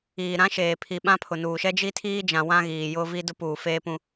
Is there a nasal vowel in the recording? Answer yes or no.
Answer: yes